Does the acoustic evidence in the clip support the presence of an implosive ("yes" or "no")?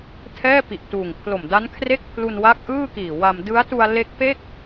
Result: no